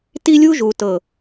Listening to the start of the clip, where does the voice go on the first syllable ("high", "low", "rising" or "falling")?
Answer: high